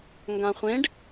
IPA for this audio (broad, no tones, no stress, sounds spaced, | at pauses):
ŋ ɡ ã χʷ ẽ ɖ